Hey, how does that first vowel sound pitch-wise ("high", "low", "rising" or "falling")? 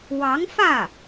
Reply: rising